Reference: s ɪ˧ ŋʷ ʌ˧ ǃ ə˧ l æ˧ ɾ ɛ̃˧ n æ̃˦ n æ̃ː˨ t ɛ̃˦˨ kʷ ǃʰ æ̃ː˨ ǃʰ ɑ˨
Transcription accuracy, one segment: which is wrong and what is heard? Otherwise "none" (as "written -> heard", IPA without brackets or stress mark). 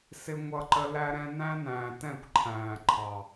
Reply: none